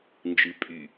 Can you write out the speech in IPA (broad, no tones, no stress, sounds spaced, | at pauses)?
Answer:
n d͡ʒ ɨ pʼ y